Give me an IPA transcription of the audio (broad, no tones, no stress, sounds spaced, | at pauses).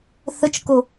θ ə t͡ʃ k o